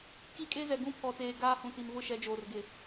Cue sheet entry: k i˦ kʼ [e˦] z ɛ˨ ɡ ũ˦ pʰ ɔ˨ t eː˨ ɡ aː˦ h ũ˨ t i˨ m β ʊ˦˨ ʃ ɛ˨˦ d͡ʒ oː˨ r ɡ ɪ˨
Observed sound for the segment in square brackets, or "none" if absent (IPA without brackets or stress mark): e˦